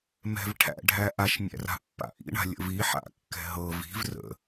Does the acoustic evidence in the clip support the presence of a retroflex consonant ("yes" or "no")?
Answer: yes